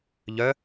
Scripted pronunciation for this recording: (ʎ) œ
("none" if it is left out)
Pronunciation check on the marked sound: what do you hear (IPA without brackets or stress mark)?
ʎ